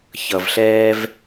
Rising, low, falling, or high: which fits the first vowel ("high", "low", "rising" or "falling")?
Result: low